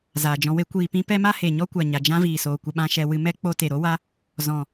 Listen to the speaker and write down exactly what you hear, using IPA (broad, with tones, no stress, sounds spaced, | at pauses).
z aː˨ d͡ʒ ɔ̃˧ w e˦ kʷ iː˧ p ĩ˦ p ɛ˦ m a˦ h e˨ ɲ ɔ˦ kʷ a˨ ɲ a˨ d͡ʒ ã˦ v iː˨ s oː˨ kʷ ə˧ ɓ ã˦ ʃ ɛ˧ w ɨ˧ m ɛ˦ k͡p o˧ t e˨ ɾ o˦ w a˦ | z ɔ̃˨